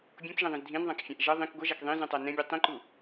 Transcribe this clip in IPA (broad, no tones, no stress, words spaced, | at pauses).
bʲõkʒẽðˤĩz dʱĩnðˤãkfʲãʔ ʒʌ ðˤĩk ɡʷʌʒak ðˤĩzũtˤa nɛ̃bʲu tˤĩǃu